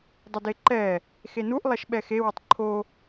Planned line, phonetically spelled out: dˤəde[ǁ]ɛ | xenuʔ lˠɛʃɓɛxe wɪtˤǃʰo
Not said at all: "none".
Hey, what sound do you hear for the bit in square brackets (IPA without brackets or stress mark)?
ǃ